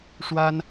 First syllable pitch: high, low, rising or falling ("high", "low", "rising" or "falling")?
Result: high